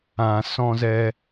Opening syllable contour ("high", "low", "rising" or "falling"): low